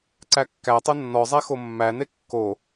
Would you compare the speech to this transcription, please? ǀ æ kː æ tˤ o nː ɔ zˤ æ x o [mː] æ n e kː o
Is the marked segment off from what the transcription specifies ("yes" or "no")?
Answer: no